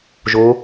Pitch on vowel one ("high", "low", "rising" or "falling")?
rising